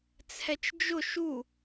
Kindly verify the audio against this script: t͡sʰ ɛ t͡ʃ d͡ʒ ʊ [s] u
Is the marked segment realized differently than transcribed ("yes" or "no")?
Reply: yes